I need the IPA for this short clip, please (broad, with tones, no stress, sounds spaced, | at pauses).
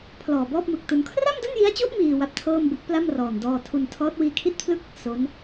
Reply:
pʰ l ɔː˨˩ b ɔː˥˩ p̚ m ɯ˨˩ k̚ t u˧ n kʰ r a˥˩ m d o˥˩ n j i˦˥ a̯ t͡ɕ u˦˥ ʔ m iː˧ w a˦˥ p̚ tʰ ɤː˥˩ m b ɯ˦˥ k̚ p l a˥˩ m r ɔː˨˩ n d ɔː˧ tʰ u˧ n tʰ ɔː˦˥ t̚ w iː˧ kʰ i˥˩ t̚ pʰ l ɯ˥˩ k̚ | s o˦˥ n